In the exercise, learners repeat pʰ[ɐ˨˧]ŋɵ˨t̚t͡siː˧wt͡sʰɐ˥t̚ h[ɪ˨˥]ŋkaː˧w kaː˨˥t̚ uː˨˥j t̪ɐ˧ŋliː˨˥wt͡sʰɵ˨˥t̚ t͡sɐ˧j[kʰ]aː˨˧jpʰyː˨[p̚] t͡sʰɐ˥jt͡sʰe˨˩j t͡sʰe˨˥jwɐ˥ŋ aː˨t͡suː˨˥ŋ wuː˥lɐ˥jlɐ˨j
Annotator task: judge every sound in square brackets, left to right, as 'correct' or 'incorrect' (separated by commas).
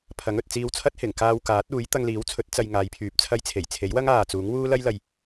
incorrect, incorrect, incorrect, correct